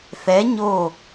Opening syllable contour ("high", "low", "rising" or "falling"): rising